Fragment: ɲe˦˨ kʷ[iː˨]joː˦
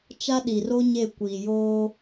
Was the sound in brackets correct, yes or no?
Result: yes